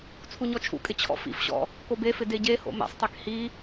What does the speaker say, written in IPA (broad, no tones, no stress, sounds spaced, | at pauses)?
t͡sʰ u ɲ ɔ t͡ʃʰ ṵ kʼ ɪ t͡ɕʰ ɔ̰ f ḭ f ɕ ɔ̰ | k o b e f ɪ d e ɟ e h o̰ m ḛ sˤ tˤ e k h i